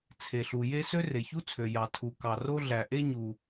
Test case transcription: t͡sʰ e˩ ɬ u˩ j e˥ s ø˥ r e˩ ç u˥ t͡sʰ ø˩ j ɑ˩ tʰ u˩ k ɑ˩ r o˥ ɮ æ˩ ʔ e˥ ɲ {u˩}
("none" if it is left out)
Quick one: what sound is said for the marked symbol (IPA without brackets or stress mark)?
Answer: u˩